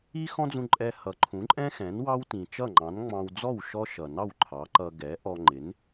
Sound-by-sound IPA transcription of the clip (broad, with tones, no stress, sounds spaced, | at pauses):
i˥ x ɔ̃˥ d͡z ũ˧ ǃʼ ɛ˧ h ʌ˩˥ ǃʰ ũ˩˥ ǃʼ ɛ̃˥ x ɛ̃˩˥ n w ɑ˥ w t ĩ˩ t͡ʃ ʌ˥˩ ŋ͡ǃ ɑ̃˩˥ n ŋ͡m ɑ̃˧ w d͡z ɔ˥˩ w ʃ ɔ˥ ʃ ʌ˩ n ɑ˥˩ w ǃʰ ɑ˩˥ ǃ ʌ˧ ɡ ɛ˩˥ ʔ ɔ˧ ŋ͡ǃ ɪ˩˥ n